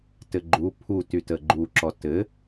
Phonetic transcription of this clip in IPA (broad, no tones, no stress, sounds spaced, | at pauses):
t ɘ ɡ͡ǃ u pʰ u t y t ə ɡ͡ǃ u ǁ ɔ t ɘ